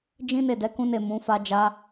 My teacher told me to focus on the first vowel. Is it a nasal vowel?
yes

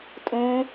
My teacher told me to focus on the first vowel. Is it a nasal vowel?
yes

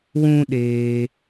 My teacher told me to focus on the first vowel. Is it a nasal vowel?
yes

